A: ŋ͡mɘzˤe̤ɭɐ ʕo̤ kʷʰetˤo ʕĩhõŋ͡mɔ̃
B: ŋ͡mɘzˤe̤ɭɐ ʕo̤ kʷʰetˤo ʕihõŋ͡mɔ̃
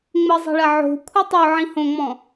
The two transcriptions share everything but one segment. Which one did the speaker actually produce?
A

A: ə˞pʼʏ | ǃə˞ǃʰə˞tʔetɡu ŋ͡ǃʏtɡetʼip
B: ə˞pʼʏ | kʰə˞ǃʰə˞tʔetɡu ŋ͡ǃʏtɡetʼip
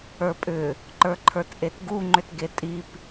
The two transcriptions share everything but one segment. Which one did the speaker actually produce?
A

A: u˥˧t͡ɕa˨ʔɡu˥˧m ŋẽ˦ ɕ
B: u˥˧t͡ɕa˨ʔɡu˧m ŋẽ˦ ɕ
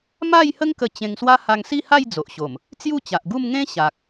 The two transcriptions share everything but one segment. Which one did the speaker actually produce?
A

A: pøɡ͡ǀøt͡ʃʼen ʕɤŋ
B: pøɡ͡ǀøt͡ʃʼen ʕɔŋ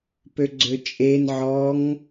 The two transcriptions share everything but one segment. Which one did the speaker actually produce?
B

